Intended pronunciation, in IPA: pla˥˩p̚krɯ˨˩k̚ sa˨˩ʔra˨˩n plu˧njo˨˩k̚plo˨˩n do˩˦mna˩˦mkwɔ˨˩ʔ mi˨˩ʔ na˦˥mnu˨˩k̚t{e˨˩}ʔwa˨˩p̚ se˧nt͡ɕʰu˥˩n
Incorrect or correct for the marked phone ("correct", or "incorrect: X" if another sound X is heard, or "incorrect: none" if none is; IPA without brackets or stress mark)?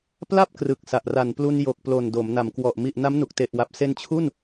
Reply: correct